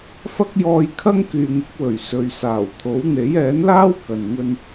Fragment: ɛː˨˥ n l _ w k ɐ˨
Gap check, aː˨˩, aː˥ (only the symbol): aː˥